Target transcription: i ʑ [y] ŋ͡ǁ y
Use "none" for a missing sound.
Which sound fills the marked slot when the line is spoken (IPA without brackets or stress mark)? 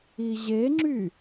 e